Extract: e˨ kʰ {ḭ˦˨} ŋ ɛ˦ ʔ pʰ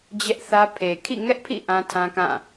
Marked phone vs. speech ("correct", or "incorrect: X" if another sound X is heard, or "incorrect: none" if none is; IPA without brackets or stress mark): correct